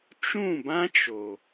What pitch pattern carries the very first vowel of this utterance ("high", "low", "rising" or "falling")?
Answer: falling